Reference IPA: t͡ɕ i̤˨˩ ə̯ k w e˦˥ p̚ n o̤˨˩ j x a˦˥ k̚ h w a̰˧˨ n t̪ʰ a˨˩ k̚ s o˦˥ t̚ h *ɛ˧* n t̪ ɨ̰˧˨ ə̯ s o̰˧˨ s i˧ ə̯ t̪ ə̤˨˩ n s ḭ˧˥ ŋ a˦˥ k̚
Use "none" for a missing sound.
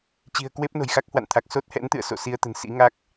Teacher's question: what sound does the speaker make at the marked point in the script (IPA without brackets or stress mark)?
ɛ̰˧˥